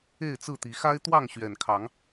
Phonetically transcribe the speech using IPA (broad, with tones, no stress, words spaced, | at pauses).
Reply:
e˥˨ɪ̯t͡sɹ̩˥˨t̪i˨˦ xa˦ɪ̯t̪wɑ˥˨ŋ ɕɥɛ˨˩nkʰɑ˨˦ŋ